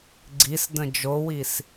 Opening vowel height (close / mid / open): close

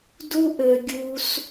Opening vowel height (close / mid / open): close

